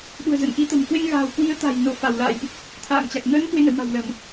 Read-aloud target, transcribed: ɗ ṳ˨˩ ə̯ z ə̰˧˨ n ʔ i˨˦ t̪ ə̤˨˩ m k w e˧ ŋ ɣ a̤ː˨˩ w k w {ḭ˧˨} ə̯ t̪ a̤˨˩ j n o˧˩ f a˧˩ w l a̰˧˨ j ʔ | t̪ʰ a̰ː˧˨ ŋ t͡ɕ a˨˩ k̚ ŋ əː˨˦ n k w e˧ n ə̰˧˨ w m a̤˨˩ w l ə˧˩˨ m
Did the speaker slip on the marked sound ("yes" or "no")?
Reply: yes